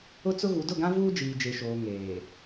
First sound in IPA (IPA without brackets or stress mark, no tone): ʊ